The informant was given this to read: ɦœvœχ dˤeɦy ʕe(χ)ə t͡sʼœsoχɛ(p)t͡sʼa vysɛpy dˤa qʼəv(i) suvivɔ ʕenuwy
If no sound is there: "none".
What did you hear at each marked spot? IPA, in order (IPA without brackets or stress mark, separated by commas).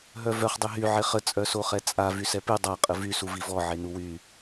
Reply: χ, none, y